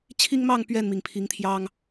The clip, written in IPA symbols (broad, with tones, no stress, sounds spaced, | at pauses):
t͡ɕʰ i˦ ŋ m ɑ˥˨ ŋ p ɥ ɛ˥˨ n m i˩ ŋ pʰ i˨˦ ŋ t̪ʰ j ɑ˦ ŋ